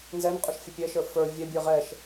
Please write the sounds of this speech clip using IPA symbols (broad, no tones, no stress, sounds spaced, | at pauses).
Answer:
n z ɛ n qʼ ʊ ʃ fʲ ə pʲ ɛ ʃ ə˞ f ə˞ vʲ ɛ bʲ ə˞ ʁ ɛ ʃ